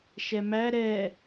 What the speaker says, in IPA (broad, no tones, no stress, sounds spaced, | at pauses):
ʃ ɛ m æ ɾ ɛ